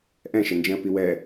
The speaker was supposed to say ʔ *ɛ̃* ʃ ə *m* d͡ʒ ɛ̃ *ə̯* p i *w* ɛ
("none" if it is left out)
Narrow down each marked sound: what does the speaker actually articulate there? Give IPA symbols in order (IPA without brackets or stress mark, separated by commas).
ɛ̃, n, ə̯, w